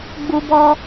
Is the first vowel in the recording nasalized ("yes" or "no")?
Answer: no